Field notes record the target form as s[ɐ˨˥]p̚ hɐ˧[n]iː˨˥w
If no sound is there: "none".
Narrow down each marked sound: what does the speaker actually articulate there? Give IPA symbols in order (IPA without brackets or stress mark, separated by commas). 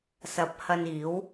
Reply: ɐ˨˥, n